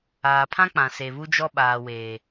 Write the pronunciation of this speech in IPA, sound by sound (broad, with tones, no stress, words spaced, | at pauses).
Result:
aː˨pʰã˦k͡pã˨ se˨βu˦d͡ʒɔ˦ ɓaː˨weː˨